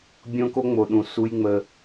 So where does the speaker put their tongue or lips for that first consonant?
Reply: lips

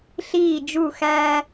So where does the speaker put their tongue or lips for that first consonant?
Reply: tongue tip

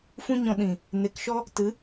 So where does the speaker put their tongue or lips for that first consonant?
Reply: lips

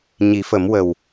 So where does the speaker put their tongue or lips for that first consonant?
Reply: palate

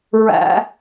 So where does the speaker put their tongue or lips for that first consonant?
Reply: tongue tip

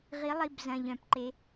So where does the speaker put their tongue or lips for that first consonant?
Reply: uvula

